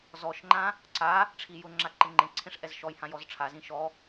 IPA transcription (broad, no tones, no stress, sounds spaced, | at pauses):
z ɔ ʃ ŋ͡ǃ ã | ǀ a | ʈ͡ʂʰ i j ʊ ŋ͡ǁ a ǃ e ŋ͡ǃ ẽ ǀʰ ẽ ʂ ʔ ɛ z ʃ ɔ j h ã j ɔ z ʈ͡ʂʰ a z ĩ ʃ ɔ